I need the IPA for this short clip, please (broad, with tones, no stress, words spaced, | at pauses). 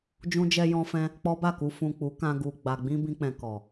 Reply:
d͡ʒũ˧d͡ʒɛ˧jɔ̃˧fɛ̃˧ | k͡pɔ˦ba˦˨ku˧ fũ˨ k͡pu˨˦kã˧ɡu˨ ɡ͡ba˨ɡ͡bĩ˧ bĩ˧k͡pɛ̃˨ kɔ˨